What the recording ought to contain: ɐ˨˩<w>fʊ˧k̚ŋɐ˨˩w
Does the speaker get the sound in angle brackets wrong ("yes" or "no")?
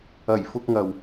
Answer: yes